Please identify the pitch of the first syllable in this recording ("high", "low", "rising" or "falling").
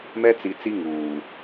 high